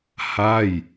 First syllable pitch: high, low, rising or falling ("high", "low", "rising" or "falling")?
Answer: falling